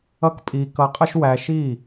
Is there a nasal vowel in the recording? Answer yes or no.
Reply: no